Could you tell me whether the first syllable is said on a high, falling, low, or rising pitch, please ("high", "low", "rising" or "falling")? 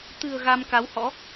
low